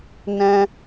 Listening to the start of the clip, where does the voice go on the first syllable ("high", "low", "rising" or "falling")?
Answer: high